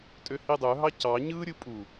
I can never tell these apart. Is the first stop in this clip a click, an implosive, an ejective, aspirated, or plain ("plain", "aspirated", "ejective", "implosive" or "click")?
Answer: ejective